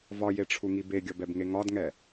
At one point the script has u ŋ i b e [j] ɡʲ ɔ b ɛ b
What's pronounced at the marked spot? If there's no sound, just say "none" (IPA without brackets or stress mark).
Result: none